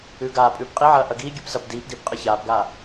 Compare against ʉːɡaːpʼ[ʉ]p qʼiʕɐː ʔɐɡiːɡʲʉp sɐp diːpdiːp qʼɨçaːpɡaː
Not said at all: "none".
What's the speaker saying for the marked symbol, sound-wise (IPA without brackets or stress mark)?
ʉː